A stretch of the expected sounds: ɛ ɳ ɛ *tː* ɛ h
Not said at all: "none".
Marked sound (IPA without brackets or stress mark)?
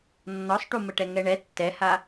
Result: tː